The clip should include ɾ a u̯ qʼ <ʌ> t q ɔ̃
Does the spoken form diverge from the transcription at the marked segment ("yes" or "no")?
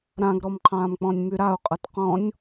no